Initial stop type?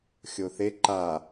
click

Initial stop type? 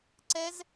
click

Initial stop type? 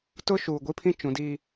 plain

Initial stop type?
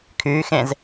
aspirated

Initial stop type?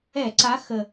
click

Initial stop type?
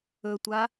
plain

